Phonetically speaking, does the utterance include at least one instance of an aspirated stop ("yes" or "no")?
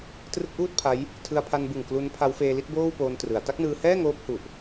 yes